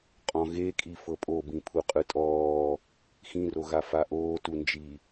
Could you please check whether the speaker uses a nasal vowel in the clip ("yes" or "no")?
yes